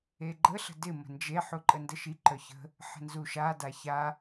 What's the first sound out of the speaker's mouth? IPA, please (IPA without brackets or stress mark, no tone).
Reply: e